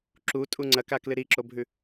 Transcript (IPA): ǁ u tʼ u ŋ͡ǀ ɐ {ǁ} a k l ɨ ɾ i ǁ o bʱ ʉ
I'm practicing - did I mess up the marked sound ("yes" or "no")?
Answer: yes